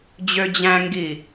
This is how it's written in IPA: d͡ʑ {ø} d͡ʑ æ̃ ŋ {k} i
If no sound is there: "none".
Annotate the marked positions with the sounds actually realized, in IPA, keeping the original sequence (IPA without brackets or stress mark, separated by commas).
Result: ø, ɡ